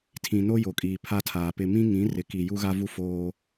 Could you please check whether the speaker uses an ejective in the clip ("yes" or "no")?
yes